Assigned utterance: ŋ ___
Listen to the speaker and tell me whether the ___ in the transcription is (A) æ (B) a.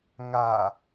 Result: B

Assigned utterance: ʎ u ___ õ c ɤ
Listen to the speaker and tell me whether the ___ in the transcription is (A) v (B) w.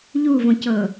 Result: A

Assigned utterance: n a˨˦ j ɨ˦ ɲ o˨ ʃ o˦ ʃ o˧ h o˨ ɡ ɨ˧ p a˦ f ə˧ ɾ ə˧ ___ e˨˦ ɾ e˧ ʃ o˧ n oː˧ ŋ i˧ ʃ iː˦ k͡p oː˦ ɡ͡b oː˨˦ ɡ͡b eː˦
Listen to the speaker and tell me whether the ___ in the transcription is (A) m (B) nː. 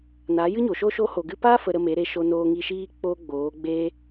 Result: A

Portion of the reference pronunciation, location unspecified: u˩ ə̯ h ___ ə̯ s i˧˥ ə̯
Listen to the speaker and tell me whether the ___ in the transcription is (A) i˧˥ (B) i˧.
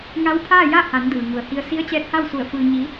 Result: B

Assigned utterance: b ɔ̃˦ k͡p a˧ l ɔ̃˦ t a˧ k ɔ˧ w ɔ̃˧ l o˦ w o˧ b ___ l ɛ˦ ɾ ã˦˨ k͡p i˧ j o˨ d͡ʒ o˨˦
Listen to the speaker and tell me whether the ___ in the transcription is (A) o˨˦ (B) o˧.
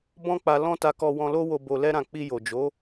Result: B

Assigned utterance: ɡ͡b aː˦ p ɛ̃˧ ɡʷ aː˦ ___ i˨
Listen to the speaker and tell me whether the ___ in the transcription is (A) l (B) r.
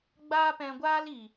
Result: A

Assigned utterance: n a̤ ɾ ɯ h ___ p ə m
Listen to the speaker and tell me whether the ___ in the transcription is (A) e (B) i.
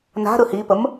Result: B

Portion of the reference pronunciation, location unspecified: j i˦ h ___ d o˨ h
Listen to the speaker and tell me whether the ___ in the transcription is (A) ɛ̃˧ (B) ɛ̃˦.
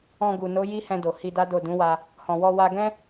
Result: A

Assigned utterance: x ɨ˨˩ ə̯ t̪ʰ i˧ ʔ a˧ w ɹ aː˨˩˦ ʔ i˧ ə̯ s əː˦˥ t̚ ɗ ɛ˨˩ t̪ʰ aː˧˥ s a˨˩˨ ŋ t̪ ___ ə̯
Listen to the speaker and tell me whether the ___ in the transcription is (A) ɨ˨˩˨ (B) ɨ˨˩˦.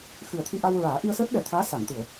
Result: A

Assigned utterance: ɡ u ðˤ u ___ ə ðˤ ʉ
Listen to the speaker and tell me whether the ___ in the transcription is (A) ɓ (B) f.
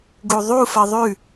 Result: B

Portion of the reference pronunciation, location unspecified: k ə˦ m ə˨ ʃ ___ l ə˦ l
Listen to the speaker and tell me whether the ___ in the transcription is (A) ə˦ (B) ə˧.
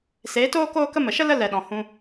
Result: A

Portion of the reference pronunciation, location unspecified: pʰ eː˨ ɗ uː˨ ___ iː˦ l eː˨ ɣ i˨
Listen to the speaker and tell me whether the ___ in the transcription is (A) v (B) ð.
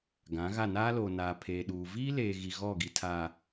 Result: A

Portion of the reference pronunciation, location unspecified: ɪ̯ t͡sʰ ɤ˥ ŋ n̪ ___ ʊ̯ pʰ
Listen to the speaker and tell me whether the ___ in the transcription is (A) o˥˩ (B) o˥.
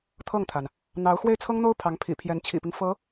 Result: B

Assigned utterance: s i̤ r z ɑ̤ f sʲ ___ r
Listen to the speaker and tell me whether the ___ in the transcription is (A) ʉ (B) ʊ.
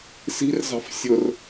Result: B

